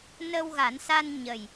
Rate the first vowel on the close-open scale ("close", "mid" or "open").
mid